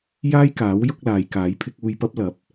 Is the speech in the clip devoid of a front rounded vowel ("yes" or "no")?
yes